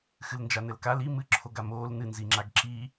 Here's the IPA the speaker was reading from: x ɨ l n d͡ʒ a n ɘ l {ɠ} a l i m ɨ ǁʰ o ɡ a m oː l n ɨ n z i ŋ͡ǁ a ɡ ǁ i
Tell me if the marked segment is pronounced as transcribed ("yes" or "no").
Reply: no